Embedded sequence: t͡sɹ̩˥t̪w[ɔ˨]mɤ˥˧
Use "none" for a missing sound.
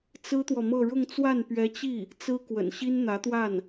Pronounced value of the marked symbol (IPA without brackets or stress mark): ɔ˨